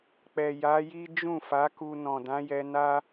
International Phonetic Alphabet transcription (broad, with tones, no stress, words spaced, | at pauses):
k͡pɛ˨ja˨˦ji˦ d͡ʒũ˦˨fa˨˦ku˧ nɔ̃˨dã˨˦jɛ˧ na˦